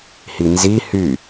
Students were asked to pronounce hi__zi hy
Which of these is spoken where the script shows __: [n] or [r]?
n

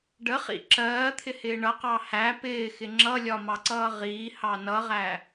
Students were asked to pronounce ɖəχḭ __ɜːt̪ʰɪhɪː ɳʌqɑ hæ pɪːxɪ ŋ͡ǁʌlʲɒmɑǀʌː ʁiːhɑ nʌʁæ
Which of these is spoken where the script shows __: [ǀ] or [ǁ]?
ǁ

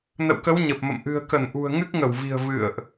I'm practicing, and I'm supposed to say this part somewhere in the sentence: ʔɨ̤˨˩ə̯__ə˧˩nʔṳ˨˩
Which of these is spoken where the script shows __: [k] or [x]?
k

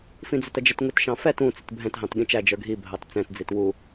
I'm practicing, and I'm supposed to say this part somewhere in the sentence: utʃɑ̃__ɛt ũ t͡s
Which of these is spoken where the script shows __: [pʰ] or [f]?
f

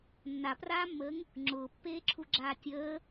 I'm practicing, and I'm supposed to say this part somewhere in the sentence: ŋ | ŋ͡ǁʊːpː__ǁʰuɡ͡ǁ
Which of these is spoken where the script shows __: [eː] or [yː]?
eː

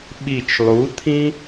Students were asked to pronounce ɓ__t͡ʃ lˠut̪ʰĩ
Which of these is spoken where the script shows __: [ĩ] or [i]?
i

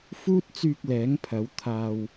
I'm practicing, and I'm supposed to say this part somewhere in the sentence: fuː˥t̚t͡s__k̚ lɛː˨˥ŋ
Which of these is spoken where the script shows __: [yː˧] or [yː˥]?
yː˧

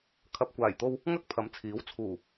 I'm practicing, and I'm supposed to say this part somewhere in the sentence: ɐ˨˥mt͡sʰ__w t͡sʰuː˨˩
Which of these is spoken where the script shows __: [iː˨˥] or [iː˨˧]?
iː˨˥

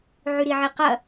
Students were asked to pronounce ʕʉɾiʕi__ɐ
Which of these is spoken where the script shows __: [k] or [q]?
q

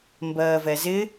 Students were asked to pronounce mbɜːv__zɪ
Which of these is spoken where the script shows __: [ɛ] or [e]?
ɛ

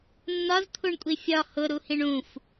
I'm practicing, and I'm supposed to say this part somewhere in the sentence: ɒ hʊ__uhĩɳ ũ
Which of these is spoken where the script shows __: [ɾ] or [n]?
ɾ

